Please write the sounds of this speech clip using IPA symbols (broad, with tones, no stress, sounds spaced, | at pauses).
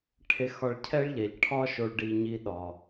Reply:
ʈʰ e˧ x ɒ˧ ɭ cʰ ɛ˥ ɭ ʎ ɛ˩˧ ʎ ʈʰ ɒ˥ ʃ o˧ ɭ ɖ i˧ ɲ i˧ ɗ ɒ˩